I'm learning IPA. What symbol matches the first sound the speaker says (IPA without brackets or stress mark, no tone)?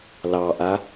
l